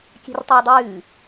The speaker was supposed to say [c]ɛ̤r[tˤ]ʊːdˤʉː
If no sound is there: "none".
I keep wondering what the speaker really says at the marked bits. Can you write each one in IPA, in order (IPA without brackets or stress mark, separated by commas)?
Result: kʲ, tˤ